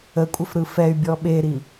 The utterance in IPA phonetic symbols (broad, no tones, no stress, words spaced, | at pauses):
əkʷʼəfɾɯ fɛy̯bʲɔ ɓeɾi